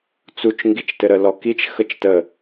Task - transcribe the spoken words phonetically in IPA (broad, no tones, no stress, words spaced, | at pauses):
t͡sut͡ʃ ŋɡit͡ʃtɘɾə lɔkit͡ʃ xət͡ʃtə